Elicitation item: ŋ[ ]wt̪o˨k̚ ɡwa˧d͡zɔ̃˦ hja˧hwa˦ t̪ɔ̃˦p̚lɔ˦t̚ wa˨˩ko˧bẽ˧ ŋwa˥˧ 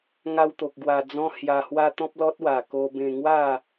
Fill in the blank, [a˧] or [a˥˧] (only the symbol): a˧